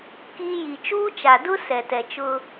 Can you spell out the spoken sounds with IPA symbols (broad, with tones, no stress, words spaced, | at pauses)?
kiː˦ ji˨t͡ʃuː˦t͡ʃa˨ dʊ˦ sɛ˨tɛ˨t͡ʃʊ˦